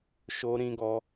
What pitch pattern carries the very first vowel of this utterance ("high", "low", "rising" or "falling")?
high